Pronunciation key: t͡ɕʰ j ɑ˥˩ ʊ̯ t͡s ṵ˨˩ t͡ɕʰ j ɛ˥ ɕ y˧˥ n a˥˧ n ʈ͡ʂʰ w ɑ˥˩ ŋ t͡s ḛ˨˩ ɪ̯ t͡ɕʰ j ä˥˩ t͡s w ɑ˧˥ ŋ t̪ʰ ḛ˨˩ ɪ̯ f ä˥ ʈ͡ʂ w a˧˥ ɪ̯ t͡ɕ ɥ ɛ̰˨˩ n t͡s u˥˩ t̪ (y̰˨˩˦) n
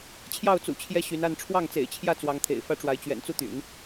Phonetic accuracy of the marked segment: correct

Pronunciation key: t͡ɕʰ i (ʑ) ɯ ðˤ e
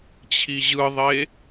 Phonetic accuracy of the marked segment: correct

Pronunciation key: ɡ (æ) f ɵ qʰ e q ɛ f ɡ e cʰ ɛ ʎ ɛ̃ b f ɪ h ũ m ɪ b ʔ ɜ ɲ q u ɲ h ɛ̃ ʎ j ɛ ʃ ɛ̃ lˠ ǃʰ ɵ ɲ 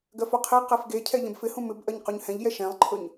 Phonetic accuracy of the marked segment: incorrect: ɜ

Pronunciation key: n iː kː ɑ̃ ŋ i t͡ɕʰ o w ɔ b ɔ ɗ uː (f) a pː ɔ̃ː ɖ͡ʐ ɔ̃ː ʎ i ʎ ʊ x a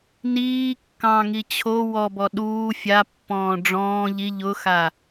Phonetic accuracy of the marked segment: incorrect: fʲ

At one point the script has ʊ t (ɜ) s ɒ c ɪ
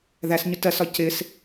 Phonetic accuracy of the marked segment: correct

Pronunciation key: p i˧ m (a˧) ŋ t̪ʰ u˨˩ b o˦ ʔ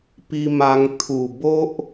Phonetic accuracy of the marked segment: correct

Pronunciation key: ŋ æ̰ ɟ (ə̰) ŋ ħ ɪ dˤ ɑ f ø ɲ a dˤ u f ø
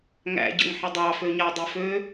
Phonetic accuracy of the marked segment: correct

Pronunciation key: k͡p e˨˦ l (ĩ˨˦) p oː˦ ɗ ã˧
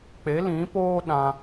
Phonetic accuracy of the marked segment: correct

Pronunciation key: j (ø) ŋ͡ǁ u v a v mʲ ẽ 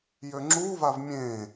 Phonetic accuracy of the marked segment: correct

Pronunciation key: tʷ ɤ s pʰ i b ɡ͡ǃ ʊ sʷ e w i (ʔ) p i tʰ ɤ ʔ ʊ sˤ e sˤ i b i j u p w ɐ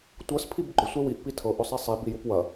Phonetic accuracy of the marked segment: correct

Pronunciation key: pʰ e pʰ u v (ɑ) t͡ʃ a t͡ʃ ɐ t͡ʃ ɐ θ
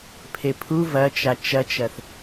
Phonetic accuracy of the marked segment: incorrect: ɐ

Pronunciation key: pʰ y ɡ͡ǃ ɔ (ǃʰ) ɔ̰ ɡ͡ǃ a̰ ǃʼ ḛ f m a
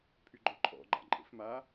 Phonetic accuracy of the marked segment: correct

